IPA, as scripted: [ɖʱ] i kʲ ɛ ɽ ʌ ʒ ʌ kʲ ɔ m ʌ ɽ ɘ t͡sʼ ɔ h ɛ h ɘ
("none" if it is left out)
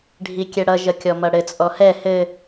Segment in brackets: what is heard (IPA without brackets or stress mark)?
ɖʱ